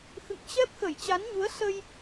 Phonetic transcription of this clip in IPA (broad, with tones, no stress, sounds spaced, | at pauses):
x ɨ̰˧˨ ŋ t͡ɕ ɛ˦˥ p̚ x ə˧˩ j t͡ɕ a˨˦ n ɲ u˨˦ ə̯ s ə˧ j